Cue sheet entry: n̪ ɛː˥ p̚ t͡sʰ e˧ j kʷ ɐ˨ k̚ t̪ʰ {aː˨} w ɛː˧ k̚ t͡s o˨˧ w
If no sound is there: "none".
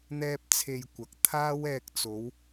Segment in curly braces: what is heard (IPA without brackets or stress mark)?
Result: aː˥